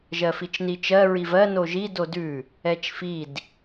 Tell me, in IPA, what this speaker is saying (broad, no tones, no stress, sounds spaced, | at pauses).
ʒ ɜ f i t͡ʃ n i t͡ʃ ɜ ɹ i v ɜ n o ʒ i d o d ʉ | ɛ t͡ʃ f i d